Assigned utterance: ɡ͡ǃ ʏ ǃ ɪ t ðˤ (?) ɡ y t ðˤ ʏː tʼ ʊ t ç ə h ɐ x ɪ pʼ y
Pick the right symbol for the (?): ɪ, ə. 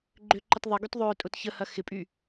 ɪ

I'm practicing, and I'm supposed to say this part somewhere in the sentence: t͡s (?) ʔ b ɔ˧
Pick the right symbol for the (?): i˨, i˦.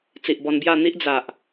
i˨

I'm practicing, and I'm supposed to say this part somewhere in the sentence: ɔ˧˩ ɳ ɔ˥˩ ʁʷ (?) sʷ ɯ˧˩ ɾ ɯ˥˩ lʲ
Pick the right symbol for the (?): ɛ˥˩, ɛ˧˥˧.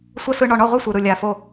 ɛ˥˩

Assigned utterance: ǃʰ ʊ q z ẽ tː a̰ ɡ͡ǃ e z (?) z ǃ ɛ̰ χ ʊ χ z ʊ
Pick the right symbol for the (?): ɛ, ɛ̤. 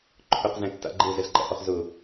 ɛ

